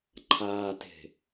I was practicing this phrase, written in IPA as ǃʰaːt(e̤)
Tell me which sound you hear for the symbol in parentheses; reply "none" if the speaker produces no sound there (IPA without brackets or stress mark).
e̤